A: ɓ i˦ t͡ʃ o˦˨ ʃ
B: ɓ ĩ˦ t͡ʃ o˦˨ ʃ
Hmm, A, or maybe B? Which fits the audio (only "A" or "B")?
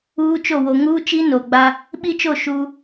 A